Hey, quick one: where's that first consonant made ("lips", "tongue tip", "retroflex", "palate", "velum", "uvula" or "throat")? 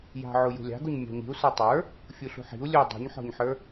palate